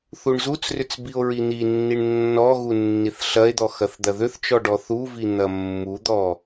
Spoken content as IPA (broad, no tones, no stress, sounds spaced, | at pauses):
θ u ɳ z u t͡s r ʏ t͡s b i o̯ ɹ i n̪ i nː i ɳ nː ɔ ɣ u nː i θ ɬ ɐ e̯ d̪ ɔ x ɐ θ d̪ ɐ ð ʏ θ t͡ʃ ɔ ɖ ɔ θ u v i n̪ ɐ mː u d̪ ɔ